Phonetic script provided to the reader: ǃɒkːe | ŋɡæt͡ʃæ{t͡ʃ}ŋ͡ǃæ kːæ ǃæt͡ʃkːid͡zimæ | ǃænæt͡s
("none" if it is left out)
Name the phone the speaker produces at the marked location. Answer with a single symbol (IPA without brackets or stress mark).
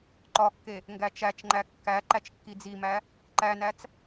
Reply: t͡ʃ